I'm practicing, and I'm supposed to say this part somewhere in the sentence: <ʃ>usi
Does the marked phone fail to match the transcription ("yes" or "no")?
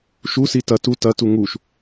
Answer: no